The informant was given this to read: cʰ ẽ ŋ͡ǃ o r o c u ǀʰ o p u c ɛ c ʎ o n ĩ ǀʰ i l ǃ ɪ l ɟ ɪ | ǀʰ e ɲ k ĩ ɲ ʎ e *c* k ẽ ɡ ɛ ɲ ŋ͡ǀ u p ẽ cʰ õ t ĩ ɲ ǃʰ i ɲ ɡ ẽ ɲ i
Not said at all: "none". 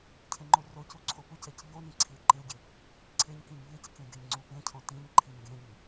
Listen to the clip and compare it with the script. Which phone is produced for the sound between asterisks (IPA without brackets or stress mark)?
c